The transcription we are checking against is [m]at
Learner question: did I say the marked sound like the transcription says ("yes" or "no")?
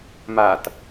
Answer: yes